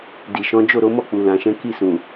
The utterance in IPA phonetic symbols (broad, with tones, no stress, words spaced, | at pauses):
di˨ʃɔ̃˨˦ d͡ʒo˦˨ɾo˨˦mɔ˦˨k͡pu˨ lã˨ʃɛ̃˨˦ ki˦˨sũ˨